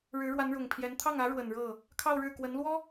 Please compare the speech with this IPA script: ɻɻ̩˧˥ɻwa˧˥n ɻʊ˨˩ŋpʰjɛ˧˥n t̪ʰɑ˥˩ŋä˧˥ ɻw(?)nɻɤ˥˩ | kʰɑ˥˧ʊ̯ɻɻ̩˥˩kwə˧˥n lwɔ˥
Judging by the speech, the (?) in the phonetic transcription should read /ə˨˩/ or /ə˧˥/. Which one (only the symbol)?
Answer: ə˨˩